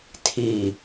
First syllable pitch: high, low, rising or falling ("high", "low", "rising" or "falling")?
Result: falling